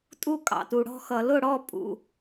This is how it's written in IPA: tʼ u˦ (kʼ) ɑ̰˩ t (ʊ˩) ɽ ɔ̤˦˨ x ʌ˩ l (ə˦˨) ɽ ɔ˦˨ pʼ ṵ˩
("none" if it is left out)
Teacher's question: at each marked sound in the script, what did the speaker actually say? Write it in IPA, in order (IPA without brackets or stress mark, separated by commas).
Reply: kʼ, u˩, ʊ˦˨